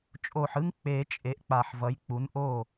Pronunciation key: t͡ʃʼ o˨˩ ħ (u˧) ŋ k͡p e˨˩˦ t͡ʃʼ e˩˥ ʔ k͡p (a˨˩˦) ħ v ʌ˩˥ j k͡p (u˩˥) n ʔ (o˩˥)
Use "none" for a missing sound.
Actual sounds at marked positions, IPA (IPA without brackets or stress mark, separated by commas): ɯ˧, a˨˩, u˩˥, o˥˩